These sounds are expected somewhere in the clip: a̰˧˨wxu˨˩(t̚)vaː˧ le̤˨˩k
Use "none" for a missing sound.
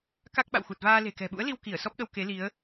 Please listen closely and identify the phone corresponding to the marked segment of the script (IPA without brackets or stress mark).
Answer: t̚